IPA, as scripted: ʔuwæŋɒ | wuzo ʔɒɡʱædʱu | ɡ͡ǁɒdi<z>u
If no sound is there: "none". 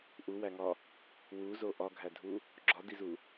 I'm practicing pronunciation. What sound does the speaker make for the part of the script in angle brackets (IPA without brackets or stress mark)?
z